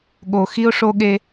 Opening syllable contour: low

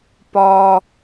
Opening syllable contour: high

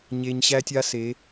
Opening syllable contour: low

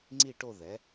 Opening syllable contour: falling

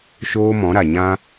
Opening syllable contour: high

